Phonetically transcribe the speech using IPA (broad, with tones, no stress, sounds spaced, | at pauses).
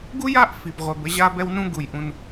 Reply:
ɡ u˥ j a˥ ʔ f i˧ b ʁʷ ɛ˧ b ə˥ ʑ a˥ b ɛ˥ w n ũ˥ ɡ u˧ j ʔ ũ˧ n